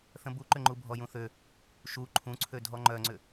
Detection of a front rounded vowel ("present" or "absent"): present